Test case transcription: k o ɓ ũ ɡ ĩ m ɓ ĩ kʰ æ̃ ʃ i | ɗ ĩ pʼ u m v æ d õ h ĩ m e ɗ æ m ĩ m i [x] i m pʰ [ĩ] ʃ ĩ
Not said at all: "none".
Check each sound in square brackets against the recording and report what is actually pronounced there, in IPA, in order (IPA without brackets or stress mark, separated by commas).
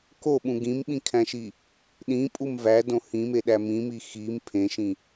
x, ẽ